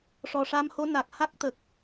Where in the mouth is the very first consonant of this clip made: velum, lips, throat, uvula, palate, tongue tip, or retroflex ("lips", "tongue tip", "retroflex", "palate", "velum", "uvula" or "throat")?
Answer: retroflex